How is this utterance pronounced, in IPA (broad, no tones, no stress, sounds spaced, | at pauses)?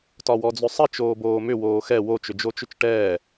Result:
t ɒ w ɔ d͡z ʏ sˤ ə t͡ʃ oː b oː m ʏ w oː x ɛ w o t͡ʃ ʏ d͡ʒ o t͡ʃ ʏ t͡ʃ ʈ ɛː